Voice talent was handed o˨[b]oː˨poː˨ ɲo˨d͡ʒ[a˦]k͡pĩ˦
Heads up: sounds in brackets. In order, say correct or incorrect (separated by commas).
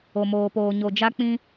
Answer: incorrect, correct